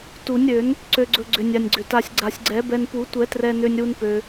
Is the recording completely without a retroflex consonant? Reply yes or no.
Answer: yes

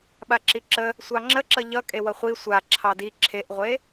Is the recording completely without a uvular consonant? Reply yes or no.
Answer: no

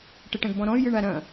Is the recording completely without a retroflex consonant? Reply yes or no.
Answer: no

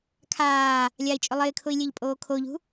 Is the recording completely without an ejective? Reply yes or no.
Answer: no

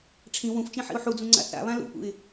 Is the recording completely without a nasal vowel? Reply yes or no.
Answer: no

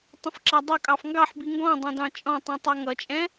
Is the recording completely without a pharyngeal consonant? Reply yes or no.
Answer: no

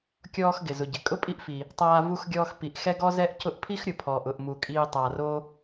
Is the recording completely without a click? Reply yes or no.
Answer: yes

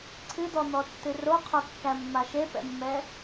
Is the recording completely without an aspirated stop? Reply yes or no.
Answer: no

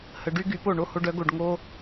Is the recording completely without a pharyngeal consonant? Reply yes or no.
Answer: yes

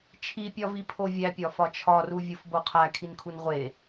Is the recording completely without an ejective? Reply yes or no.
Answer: yes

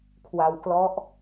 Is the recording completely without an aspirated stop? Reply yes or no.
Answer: no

